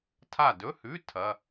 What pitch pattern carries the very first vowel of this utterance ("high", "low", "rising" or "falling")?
falling